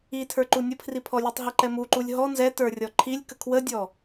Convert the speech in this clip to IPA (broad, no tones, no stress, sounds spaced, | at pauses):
i tʰ ə˞ ǃ u nʲ ə pʰ r i pʰ ɔ lʲ u tˤ ɦ ɛ ǃ ɛ m u ǃ u lʲ ɦ ɔ n z ɛ t ə˞ rʲ ɔ ǃʰ i lʲ k ə kʰ w ə dʲ ɔ